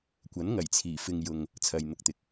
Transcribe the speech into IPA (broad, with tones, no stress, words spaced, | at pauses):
kʷɐ˨˥nŋɐ˨˩jt͡sʰiː˨˩ fɪ˨ŋ jʊ˨ŋ | t͡sʰɐ˨jn̪ʊ˧k̚t̪ɪ˨k̚